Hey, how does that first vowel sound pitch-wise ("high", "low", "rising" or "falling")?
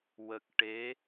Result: low